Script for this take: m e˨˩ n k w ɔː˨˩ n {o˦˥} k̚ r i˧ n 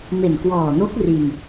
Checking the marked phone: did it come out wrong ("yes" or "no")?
no